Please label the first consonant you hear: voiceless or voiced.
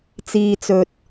voiceless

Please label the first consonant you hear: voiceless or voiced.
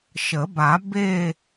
voiceless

